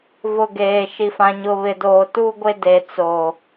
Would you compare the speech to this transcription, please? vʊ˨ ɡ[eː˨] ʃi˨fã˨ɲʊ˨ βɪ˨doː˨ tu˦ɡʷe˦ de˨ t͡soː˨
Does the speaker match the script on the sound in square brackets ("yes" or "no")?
yes